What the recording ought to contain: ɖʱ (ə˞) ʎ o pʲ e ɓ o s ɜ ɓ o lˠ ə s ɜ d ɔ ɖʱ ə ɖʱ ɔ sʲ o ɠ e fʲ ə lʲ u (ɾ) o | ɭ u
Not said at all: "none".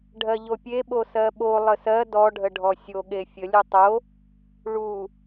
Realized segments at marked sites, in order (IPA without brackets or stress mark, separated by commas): ɜ, tˤ